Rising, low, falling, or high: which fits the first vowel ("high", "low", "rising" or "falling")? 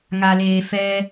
low